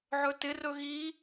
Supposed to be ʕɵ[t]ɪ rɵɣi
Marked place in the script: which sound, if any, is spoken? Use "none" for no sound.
t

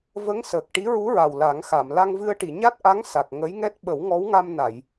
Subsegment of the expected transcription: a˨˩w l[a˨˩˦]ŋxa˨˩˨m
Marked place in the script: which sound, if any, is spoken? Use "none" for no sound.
a˨˩˦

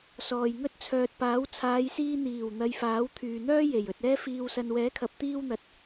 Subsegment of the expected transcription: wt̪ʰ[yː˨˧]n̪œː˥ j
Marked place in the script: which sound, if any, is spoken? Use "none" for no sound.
yː˨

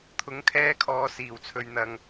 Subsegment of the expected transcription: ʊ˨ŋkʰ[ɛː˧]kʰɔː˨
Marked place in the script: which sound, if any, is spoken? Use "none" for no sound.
ɛː˧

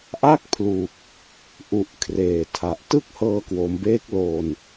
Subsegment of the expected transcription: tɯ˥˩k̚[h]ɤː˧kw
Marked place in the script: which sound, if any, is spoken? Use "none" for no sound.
h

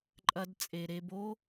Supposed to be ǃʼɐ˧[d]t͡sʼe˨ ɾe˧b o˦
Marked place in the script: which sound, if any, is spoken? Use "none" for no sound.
d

